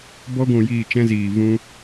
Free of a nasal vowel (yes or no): no